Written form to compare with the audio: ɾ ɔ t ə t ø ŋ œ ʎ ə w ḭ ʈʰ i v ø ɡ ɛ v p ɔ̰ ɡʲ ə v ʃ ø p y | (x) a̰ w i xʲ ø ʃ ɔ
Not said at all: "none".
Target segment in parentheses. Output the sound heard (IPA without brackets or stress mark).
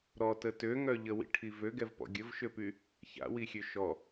ç